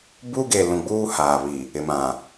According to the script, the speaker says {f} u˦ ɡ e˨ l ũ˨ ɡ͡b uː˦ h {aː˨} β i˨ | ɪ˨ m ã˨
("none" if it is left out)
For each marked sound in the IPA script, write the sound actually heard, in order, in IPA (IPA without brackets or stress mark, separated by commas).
b, aː˨